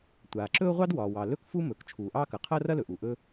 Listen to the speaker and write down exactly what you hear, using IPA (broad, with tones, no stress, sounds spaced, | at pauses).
tʷ aː˩ ǁ ɵ˥ ʊ̯ ʁʷ ɑ˥ d w ɒː˩ w ɑ˩ l ɵ˥ k f u˥ m ɵː˩ k t͡ʃʰ uː˩ ʔ ɑː˥ k ɐ˩ qʰ ɐː˥ r ɐ˥ l ɵ˩ ʔ u˩ ʔ ɵ˥